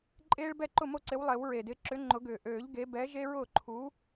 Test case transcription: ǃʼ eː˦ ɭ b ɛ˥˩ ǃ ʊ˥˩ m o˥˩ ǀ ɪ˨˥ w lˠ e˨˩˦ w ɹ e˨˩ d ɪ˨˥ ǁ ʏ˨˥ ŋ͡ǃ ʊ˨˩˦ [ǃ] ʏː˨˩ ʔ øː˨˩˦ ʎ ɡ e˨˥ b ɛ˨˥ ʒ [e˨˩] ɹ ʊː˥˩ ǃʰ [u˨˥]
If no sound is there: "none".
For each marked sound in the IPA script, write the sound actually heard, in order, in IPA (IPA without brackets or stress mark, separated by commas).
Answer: ɡ, e˦, u˨˥